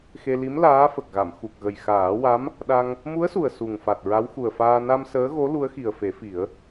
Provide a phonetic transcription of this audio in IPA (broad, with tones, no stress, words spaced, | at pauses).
xe˧ li˧˥m laː˧˥fə˨˩k̚ɣa˨˩˨m xu˨˩k̚ɣə˨˩jxaː˨˩˦wa˧˥m | ɗa˧ŋ | mu˧˥ə̯su˨˩ə̯ su˨˩ŋfa˨˩t̚ ɹa˧˥wxu˨˩ə̯faː˧ na˧m səː˧˥ɣo˧˥ lu˧˥ə̯xi˨˩ə̯fe˨˩˦fi˨˩˦ə̯